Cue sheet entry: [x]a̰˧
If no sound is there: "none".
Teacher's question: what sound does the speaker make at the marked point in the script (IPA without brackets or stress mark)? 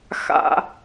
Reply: x